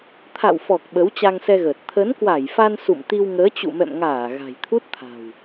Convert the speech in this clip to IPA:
t̪ʰ a̰˧˨ w f ɔ˨˩ k̚ ɓ ə˨˦ w t͡ɕ a˧ ŋ s ɛ˧ ɣ əː˨˩ t̚ t̪ʰ ə˨˦ n k w a˧˩ j f a˧ n s ṵ˧˨ m t̪ i˧ w ŋ əː˨˦ t͡ɕ ṵ˧˨ m ɛ̰˧˨ m ŋ aː˧˩ ɣ a̤˨˩ j t̪ʰ u˦˥ t̚ t̪ʰ a̤˨˩ w

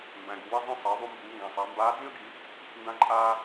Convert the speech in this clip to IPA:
m b æ̃˩ ɡ u˩ w i˧ zˤ ĩ˧ sˤ ɑ˩˧ ðˤ u˧ m b uː˩˧ ŋ ɡ ã˩ sˤ a˩˧ m b aː˧˥ d͡z ĩ˥ ə̯ ɡ i˩˧ | n d ã˧ ǃʼ aː˧

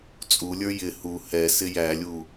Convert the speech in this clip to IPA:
t͡sʼ u lʲ ə˞ j ɪ h u h ɛ s ɪ j æ lʲ u

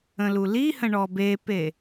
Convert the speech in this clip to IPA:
ə̃ l u l i h ə̃ ɳ ɔ b e p e

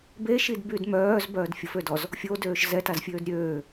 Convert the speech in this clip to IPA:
b e ʃ i d b y d m œː z b œː d fʲ ə f ø d ɔ z | fʲ o d øː ʃ z ɛ t a z fʲ øː d ɾʲ øː

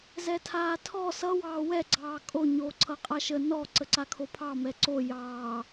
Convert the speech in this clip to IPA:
z ɛ tʰ aː tʰ ɔ s ʌ w ɑː w ɛ ɡ͡ǀ ɑː kʼ o ɲ oː ǀʰ ʌ qʼ a ʃ ə n ɔ ǀ ə ǀ a kʰ o pʰ ɑ m ɛ ǀ o j ɑː

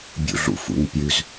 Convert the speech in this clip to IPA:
bʲ ṵ ɮ ṵ f ṵ ɲ pʲ ʉ z

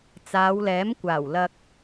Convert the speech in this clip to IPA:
t͡s aː˨˧ w l ɛː˨˥ m kʷ aː˨˩ w l ɐ˧ k̚

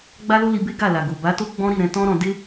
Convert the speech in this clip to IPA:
ɡ͡b a˦ l o˦ l i˧ b e˦ ɡ a˦˨ l a˨ ɡ o˨ b a˨˦ t o˦ ɡ͡b ɔ̃˦ ɾ i˦˨ ɾ ɛ̃˧ t ɔ̃˦ ɾ ɔ̃˧ d e˦

